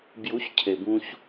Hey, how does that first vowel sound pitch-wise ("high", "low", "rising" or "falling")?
rising